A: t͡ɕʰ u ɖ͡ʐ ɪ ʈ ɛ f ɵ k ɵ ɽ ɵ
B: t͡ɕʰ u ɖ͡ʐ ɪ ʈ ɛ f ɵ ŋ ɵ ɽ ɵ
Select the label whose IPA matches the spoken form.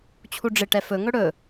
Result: B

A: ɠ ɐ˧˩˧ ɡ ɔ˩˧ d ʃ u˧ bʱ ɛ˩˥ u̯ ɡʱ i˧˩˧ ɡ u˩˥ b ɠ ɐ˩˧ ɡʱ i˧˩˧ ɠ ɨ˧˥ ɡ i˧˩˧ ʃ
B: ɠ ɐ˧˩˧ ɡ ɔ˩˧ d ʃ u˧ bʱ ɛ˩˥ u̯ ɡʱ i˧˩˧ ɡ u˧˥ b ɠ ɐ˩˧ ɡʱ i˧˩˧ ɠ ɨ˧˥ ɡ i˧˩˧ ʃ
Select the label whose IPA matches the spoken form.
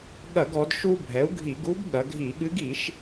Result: B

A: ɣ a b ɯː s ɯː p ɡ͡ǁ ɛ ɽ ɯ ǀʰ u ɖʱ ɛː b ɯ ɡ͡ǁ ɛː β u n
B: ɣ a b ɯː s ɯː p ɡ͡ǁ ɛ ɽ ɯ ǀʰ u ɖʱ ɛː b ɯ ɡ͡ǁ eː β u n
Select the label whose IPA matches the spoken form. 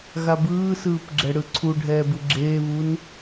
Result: B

